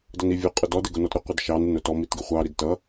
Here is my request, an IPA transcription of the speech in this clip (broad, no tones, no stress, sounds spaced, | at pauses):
d ʌ n i vʲ ʊ qʼ ʊ d ɔ d ɪ ɡ ʊ n ɔ t ɾ ʊ qʷ ɪ d ʃ ɑ n ɪ n ʊ t ɔ m i t ɡ ɪ χʷ ɑ ɾ i d t ʌ